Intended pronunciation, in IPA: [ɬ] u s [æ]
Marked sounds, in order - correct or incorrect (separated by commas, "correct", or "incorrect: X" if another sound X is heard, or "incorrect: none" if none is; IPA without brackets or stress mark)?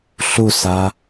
correct, incorrect: a